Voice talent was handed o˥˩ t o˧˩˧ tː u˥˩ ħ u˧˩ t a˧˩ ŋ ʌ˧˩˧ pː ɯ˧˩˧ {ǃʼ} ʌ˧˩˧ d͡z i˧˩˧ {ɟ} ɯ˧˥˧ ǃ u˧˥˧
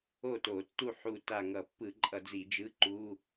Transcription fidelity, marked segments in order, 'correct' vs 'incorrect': correct, incorrect: d͡ʒ

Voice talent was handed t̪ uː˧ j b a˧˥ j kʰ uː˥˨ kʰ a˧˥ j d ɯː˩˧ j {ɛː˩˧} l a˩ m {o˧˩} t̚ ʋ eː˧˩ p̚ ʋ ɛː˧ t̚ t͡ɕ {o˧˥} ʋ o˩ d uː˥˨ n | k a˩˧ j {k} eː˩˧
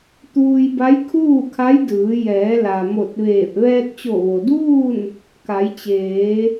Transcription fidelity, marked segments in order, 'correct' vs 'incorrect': correct, correct, incorrect: o˧˩, incorrect: t͡ɕ

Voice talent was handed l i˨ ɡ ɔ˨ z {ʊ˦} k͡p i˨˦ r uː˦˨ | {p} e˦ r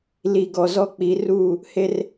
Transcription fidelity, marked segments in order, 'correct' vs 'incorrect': incorrect: ɔ˦, incorrect: h

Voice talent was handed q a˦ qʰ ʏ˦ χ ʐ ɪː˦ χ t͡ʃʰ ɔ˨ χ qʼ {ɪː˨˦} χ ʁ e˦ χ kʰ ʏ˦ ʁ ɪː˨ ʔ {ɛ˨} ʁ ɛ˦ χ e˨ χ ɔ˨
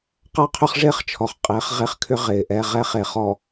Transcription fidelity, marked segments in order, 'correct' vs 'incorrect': correct, incorrect: ɛ˦

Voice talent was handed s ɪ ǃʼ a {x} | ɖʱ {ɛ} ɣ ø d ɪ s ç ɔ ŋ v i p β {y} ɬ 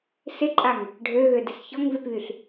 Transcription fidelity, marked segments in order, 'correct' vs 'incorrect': incorrect: ŋ, incorrect: ø, correct

